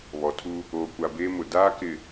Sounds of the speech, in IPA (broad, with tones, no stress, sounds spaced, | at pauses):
β ɔ˨ tʰ u˦ | oː˨ kʷ a˨ b eː˦ m ʊ˨ d aː˦ k ɪ˨